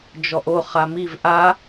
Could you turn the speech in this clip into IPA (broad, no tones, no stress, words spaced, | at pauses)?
d͡ʒɔʔo χamiv ʔa